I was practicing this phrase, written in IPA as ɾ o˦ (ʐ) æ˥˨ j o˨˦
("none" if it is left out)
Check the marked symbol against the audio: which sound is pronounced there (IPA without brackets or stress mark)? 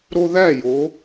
ð